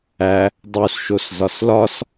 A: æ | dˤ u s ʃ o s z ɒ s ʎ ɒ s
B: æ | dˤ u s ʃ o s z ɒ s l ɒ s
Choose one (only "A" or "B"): B